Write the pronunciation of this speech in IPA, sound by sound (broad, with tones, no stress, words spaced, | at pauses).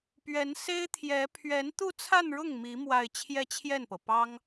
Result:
pɥɛ˧˥nse˥ɪ̯t̪ʰjɛ˧˥ pʰɥɛ˧˥nt̪u˥˧t͡sʰa˥˧nɻʊ˥˩ŋ mi˧˥ mwa˥˧ɪ̯ t͡ɕʰjɛ˥˧t͡ɕʰjɛ˥˩npɤ˩pɑ˥ŋ